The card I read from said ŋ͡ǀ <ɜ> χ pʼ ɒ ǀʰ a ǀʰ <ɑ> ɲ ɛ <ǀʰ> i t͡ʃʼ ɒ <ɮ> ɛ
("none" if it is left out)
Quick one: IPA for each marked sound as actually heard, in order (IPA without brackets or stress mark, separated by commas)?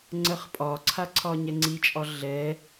ɜ, ɒ, ŋ͡ǀ, ɮ